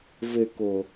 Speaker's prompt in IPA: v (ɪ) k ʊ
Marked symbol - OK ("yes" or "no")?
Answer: yes